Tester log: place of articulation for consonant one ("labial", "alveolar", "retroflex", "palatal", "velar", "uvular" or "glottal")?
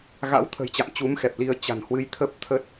velar